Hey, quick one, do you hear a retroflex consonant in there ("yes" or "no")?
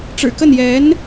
yes